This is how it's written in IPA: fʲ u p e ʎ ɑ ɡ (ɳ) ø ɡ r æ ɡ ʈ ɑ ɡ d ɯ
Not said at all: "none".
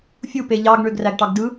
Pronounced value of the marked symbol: ɳ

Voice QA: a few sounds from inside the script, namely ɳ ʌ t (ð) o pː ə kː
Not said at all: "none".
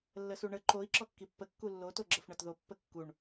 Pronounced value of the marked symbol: ð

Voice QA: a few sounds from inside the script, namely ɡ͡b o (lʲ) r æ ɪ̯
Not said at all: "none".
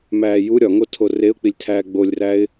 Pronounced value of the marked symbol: lʲ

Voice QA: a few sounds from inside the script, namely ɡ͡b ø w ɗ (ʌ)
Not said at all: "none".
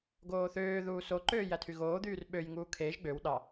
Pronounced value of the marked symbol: ɑ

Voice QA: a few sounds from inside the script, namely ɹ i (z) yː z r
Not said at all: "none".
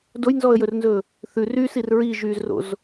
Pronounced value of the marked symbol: ʒ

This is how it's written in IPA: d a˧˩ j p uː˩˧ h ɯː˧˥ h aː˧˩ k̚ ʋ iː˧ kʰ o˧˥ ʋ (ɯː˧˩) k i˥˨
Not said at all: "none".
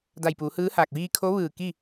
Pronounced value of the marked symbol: ɯː˧˩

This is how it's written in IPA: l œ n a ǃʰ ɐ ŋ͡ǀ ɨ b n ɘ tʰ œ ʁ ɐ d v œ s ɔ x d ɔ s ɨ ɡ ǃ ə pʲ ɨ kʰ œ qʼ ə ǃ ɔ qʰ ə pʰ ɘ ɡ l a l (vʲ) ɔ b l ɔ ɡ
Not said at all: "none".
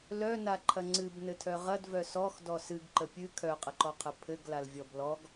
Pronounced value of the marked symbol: vʲ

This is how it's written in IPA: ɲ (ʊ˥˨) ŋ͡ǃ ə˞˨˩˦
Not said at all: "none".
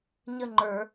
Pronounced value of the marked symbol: ə˥˨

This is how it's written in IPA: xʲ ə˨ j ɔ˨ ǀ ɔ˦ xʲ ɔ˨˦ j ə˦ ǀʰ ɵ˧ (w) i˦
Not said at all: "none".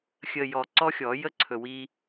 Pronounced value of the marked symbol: w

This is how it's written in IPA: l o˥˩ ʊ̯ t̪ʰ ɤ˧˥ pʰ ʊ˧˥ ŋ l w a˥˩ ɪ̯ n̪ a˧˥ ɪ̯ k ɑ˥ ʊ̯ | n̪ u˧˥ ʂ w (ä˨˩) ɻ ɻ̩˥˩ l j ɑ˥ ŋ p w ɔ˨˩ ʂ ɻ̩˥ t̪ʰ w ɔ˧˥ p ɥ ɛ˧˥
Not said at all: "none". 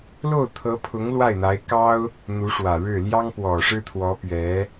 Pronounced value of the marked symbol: ä˨˩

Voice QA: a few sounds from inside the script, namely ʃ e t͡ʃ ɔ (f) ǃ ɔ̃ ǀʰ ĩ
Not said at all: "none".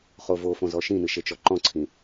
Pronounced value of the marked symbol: none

